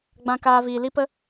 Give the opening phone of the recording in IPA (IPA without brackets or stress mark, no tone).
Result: ɡ͡b